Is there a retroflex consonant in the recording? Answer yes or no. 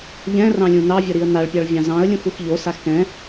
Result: yes